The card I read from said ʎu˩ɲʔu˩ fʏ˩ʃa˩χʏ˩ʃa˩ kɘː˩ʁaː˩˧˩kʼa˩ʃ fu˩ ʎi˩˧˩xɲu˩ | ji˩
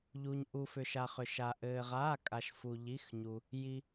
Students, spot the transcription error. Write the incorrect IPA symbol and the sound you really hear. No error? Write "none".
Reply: k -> ʔ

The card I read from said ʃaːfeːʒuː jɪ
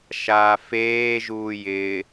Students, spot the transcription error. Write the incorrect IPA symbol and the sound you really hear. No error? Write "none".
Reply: none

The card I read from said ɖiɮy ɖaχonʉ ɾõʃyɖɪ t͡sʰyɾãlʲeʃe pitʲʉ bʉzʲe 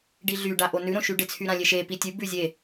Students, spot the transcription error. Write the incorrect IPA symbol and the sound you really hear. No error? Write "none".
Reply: χ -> ʔ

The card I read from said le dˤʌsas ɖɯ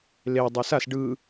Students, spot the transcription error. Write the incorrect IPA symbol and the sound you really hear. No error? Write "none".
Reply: ʌ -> a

